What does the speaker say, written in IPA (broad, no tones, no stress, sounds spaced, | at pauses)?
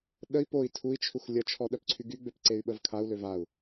ɗ ə i̯ p o i̯ tʰ u i̯ t͡ʃʰ u x lʲ ə t͡ʃʰ ɔ ɗ œ p ǀʰ y ɡ y ɡ͡b ø p ǀ e y̯ ɓ ə v kʰ a u̯ l ø v a u̯